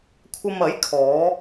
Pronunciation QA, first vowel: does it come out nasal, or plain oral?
oral